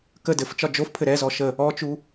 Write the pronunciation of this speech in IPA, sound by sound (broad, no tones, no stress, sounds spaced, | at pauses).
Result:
k ə d ɘ f t͡ʃ ɒ d͡ʒ o f pʰ ɘ ɾ ɛ z ɔ ʃ ə | ɔ t͡ʃ u